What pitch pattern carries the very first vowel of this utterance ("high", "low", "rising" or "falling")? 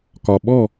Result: low